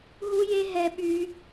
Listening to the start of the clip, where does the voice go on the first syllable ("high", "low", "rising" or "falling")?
high